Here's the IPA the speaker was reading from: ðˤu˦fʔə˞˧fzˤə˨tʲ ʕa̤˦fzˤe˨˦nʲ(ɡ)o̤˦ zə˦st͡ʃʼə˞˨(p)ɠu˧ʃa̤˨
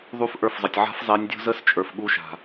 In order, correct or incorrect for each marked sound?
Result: incorrect: dʲ, incorrect: f

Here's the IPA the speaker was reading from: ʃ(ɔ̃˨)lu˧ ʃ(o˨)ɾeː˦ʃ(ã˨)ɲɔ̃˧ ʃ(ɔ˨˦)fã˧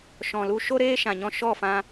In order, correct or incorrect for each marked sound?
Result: correct, incorrect: o˦, correct, incorrect: ɔ˦˨

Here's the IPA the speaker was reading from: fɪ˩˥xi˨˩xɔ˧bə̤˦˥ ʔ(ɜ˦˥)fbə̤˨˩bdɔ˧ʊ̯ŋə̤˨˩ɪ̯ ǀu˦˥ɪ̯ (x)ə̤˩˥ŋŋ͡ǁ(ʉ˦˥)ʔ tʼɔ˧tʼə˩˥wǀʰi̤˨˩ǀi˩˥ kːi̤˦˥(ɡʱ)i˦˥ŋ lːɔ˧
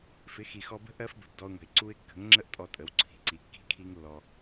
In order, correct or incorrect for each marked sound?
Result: correct, incorrect: kː, incorrect: ə˦˥, incorrect: kʰ

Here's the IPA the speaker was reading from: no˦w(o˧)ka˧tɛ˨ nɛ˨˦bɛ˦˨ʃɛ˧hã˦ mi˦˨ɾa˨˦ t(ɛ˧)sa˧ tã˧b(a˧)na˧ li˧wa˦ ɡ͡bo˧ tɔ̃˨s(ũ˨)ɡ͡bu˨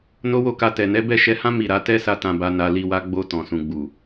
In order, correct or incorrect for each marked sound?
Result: incorrect: o˦˨, incorrect: ɛ˦, correct, correct

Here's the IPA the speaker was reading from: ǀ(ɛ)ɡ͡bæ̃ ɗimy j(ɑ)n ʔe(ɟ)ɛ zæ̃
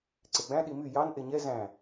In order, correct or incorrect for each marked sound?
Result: incorrect: e, correct, incorrect: ɲ

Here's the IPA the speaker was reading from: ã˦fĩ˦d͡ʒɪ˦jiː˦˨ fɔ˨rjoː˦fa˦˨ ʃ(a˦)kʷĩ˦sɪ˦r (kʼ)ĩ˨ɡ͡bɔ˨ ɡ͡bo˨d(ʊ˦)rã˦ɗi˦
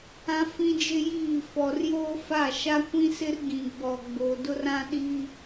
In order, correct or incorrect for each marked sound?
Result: correct, incorrect: ɡ, correct

